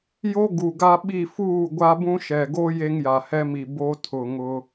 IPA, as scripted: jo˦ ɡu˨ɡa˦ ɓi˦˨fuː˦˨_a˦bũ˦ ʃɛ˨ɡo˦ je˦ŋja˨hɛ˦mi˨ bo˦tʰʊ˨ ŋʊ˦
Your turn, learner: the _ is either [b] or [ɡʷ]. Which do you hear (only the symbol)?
ɡʷ